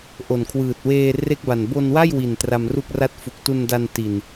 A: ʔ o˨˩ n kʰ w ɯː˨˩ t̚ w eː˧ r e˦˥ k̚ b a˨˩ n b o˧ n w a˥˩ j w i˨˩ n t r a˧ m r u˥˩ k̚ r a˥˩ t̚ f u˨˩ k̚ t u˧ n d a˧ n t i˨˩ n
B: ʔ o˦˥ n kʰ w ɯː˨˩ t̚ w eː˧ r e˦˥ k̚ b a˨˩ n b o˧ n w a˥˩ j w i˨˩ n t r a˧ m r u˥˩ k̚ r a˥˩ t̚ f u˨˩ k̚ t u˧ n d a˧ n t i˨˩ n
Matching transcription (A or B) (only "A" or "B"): A